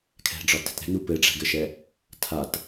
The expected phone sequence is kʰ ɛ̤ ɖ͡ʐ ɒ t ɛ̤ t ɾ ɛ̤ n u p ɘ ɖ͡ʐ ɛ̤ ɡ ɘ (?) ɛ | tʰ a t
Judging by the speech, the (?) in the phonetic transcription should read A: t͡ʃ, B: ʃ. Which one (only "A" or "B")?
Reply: B